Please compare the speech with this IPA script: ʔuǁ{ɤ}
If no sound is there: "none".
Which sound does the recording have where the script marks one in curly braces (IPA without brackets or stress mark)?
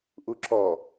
ɔ